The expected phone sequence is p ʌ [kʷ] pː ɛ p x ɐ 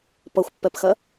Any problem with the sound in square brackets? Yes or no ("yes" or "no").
yes